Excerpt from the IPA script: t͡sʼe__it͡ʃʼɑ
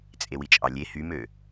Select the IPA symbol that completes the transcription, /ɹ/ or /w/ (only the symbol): w